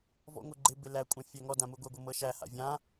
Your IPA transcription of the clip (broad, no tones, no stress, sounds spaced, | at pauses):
v ɔ̰ ŋʷ ɛ ɡ͡ǃ ɪ b ɪ l æ kʷʼ ã fʲ æ ŋ ɔ d ã m u ɡʷ ɛ ɡʷ ɤ m ɤ ʃ æ h a̰ vʲ ã